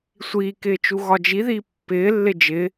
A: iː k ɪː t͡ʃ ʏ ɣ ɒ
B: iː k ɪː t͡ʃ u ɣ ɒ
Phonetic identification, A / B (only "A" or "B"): B